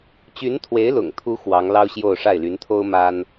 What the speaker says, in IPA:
t͡ɕ y˧˥ n t̪ʰ w e˧˥ ɪ̯ l ʊ̰˨˩ ŋ t̪ʰ u˧˥ x w ɑ˧˥ ŋ l ɑ˥ ʊ̯ ɕ j o˥˧ ʊ̯ ʂ a˥˩ ɪ̯ l y˧˥ n t̪ʰ o˥ ʊ̯ m a˥ n

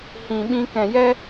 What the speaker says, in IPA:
h ĩ˨ ɓ ĩ˧ k ɛ̃˨ j ɛ˦

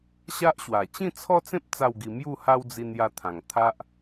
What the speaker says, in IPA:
ɕ a˦ ʔ ɕ w a˨˩ t͡ɕ ĩ˥˧ t͡sʰ ɔ˦ t͡s ẽ˦ p̚ t͡s a˥˧ w ɡ i˧ m j u˥˧ h a˦ w d͡z i˧ n j a˧ t̪ʰ ã˨˩ ŋ t̪ʰ a˦ ʔ

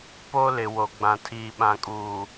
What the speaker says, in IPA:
p o˦ l ɪ˨ w o˨ ɡ͡b ã˨ tʰ iː˨ ɓ ã˨ kʼ uː˨

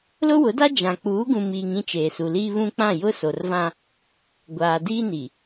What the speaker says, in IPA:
l ʊ˦ w ʊ˨˦ d a˦ d͡ʒ ã˨ k͡p uː˨˦ ɡ ũ˨ m iː˨ ŋ ĩ˦ t͡ʃ eː˨ s u˨ l iː˦ β ũ˦ k͡p ã˦˨ j ʊ˦ s o˨ r v ã˦ | ɡʷ aː˨ d iː˦ n i˨

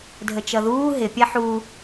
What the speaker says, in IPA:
dʱ ə t͡ʃ ʌ ð uː ɦ ɪ pʲ ɛ ħ u

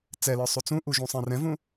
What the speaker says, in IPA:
t͡s ɛ l ə˞ sˤ u t͡s ũ ʔ u ʒ ũ sˤ ɛ̃ r ɛ̃ v ũ

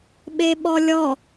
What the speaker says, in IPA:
ɓ e ɓ ɔ lʲ ɔ

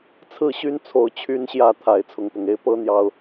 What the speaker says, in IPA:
t͡sʰ ɹ̩˥˨ ɕ y˦ n t͡sʰ o˨˦ ʊ̯ t͡ɕʰ y˨˦ n ɕ j ä˨˩ t̪ʰ a˨˦ ɪ̯ t͡sʰ ʊ˨˦ ŋ p ʊ˨˩ ŋ e˦ ɪ̯ p ɤ˦ n̪ j ɑ˨˩ ʊ̯

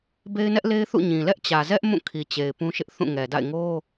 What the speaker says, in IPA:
b e˦ ɪ̯ n ɛ˦ ʔ l e˦ ɪ̯ θ ṵ˦˨ ɲ ĩ˨ l ɛ˦ ʔ t͡ɕ ä˨ z ɛ˦ ʔ m ũ˦˨ kʰ i˨ t͡ɕ e˨ ɪ̯ p ũ˦ ʃ ɪ˦ ʔ θ ũ˦˨ ŋ ɛ˨ d a̰˦˨ ɪ̯ ŋ o˦

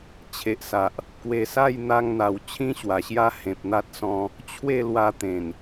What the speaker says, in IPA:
t͡ɕʰ e˨ ʔ s a˨ ʔ | k w e˨˩ s a˥˧ j n̪ a˧ ŋ n̪ a˨˩ w t͡ɕʰ ĩ˦ ɕ w a˨˩ ɕ j a˦ h ẽ˨ p̚ n̪ a˦ t̚ s ɔ̃˧ | t͡ɕʰ w e˥˧ l w a˧ t̪ ẽ˨˩ n

